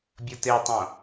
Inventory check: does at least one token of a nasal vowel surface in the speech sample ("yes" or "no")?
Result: yes